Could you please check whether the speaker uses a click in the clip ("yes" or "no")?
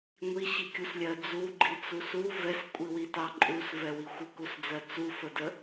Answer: yes